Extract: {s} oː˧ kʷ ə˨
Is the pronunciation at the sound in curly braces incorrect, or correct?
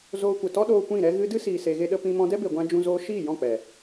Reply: incorrect